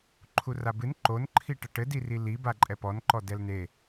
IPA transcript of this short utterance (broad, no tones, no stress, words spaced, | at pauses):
ǃʰurabɨn ǃonǃʰi ʈɐʈɘdiri liba ǃʼɛpɔnǃɔ dɛlne